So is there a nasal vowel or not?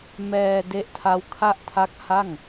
no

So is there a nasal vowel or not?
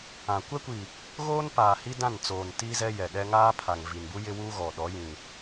yes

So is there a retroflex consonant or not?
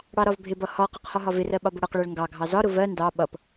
yes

